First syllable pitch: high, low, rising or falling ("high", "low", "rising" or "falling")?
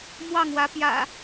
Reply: falling